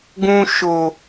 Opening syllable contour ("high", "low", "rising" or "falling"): high